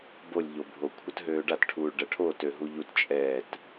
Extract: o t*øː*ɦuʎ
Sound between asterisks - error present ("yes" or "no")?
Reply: yes